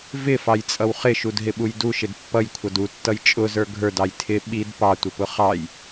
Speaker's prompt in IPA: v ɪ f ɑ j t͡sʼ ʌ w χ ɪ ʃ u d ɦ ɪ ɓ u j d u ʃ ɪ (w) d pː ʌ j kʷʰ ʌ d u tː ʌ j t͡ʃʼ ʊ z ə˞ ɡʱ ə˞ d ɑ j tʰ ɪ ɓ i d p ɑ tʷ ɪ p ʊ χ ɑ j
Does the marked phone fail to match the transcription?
yes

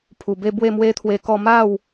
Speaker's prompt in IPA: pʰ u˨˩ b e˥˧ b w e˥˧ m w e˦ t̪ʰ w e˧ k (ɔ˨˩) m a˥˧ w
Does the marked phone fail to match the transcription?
yes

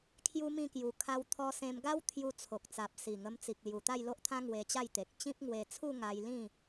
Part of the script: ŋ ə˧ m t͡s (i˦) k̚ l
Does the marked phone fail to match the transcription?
yes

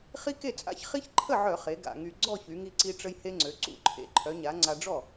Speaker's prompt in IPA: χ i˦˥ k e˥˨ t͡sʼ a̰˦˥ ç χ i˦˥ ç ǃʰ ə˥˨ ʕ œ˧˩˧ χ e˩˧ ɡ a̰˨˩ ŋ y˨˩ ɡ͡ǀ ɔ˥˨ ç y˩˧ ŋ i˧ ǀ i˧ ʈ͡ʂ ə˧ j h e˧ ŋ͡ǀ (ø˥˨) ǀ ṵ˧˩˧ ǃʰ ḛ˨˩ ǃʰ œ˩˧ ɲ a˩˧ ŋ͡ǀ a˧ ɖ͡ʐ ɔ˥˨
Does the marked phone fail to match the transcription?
yes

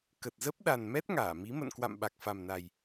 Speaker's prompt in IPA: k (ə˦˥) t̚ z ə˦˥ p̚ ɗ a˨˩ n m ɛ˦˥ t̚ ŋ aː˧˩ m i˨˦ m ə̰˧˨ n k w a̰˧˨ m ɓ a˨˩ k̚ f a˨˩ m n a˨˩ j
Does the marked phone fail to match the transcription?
yes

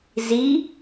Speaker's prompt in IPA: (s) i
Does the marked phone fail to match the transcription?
yes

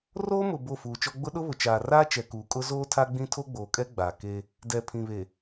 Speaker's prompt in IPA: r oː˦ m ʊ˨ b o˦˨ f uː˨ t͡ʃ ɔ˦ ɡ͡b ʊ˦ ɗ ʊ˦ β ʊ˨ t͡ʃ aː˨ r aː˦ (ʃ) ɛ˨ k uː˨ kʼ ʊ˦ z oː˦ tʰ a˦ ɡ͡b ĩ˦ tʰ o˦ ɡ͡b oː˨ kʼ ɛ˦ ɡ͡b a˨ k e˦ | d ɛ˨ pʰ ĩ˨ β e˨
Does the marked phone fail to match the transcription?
yes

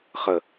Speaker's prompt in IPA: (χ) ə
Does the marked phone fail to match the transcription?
no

